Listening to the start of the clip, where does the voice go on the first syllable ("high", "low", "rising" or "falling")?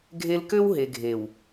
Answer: high